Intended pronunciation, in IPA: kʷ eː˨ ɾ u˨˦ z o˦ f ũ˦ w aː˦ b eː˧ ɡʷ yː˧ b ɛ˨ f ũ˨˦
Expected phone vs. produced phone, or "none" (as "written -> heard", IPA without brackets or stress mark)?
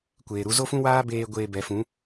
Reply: yː˧ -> eː˧